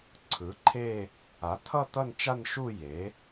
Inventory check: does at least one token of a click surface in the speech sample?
yes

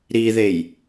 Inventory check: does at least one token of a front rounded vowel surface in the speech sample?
no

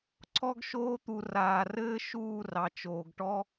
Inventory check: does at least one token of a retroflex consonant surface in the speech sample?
yes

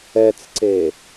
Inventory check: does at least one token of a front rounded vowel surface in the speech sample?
no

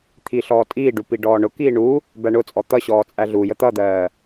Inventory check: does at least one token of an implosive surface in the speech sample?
no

